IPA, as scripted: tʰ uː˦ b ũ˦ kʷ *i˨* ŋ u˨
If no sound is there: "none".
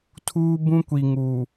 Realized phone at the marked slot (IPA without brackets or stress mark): i˨